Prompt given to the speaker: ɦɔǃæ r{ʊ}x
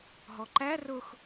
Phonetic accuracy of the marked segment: correct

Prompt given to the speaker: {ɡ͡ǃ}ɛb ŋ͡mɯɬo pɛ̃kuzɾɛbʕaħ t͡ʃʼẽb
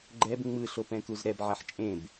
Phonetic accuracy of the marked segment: correct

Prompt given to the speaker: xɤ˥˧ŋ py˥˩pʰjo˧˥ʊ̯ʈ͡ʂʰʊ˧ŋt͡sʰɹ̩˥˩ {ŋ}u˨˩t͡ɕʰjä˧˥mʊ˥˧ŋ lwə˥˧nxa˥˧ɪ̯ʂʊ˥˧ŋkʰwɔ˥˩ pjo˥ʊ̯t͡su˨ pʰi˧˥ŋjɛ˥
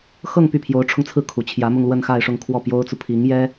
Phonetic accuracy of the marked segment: incorrect: kʰ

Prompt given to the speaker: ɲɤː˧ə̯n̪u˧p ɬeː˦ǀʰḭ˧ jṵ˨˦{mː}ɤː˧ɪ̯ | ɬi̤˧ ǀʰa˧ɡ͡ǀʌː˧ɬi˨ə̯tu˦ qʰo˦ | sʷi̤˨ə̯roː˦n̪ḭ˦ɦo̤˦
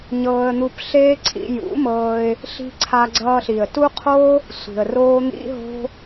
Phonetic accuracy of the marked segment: incorrect: m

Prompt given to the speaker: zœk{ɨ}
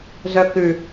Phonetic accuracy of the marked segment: incorrect: ʉ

